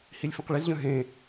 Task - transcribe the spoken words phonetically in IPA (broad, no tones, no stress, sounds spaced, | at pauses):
h i lʲ f ĩ q ɭ i z ʎ œ̃ ɦ ẽ